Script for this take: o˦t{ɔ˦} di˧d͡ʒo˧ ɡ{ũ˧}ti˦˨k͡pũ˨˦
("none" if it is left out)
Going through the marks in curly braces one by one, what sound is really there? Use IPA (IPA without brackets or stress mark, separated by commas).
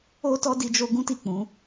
ɔ˦, ũ˦